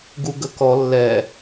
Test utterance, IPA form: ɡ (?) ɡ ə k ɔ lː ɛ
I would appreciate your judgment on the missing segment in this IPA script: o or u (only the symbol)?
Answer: u